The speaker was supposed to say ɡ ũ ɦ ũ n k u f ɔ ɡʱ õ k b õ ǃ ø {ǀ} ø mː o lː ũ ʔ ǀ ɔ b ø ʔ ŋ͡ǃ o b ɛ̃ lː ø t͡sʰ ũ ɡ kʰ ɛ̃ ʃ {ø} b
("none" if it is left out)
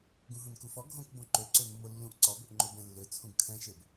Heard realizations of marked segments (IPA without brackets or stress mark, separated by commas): ǀ, e